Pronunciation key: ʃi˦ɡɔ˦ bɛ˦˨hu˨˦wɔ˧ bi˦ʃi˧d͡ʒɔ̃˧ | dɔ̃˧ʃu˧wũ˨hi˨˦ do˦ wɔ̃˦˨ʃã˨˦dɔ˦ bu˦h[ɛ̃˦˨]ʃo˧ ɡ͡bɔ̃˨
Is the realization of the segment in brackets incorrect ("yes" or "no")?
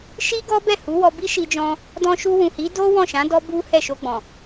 yes